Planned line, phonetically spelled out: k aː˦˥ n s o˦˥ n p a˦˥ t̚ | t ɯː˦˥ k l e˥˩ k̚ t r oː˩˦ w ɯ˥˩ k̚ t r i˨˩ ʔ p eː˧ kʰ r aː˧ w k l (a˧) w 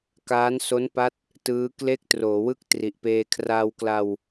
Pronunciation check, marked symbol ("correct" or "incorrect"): correct